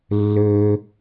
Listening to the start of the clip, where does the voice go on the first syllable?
high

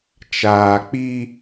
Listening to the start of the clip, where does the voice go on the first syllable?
low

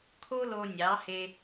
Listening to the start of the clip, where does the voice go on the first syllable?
high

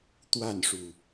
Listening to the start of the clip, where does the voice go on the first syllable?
falling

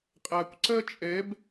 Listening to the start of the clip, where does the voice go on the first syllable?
low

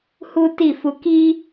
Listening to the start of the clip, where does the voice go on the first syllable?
high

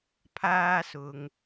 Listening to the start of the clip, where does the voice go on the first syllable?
high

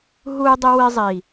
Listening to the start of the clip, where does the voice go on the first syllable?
high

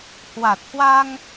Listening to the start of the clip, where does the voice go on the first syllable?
low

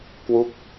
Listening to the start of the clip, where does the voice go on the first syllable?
falling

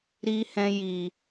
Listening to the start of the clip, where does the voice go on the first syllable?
high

